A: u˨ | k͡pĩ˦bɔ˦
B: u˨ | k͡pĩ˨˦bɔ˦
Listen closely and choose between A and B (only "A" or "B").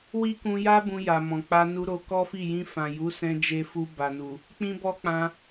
A